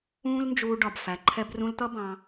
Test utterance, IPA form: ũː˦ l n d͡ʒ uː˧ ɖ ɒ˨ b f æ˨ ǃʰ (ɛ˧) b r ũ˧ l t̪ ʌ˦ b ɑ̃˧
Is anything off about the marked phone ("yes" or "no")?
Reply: no